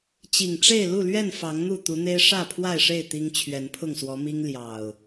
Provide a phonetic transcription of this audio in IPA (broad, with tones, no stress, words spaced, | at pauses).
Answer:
t͡ɕi˨˩ŋʈ͡ʂe˥˨ɪ̯ lu˥˨lɥɛ˥˨n fɑ˨˦ŋn̪u˥˨ t̪u˨˦n̪e˦ɪ̯ ʂä˥˨pʰwa˥˨ɪ̯ʂe˥˨ɪ̯ t̪i˦ŋ t͡ɕʰɥɛ˨˦npʰʊ˥˨ŋswɔ˨˦mi˦ŋ ljɑ˨˩ʊ̯